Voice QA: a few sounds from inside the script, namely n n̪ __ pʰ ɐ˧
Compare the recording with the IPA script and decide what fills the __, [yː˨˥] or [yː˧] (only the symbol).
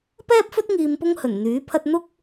yː˨˥